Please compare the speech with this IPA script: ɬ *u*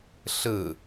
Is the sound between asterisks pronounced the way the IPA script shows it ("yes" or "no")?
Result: no